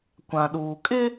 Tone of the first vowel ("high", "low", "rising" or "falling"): low